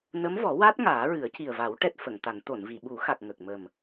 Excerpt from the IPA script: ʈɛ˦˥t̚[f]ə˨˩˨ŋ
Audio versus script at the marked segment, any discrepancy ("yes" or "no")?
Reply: no